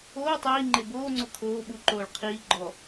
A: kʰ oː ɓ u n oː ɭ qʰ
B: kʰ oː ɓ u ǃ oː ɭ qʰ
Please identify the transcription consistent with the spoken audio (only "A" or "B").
B